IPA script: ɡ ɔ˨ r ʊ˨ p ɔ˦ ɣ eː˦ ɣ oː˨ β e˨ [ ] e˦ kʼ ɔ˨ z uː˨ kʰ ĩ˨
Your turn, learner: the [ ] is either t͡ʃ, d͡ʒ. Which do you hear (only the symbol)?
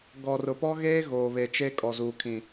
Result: t͡ʃ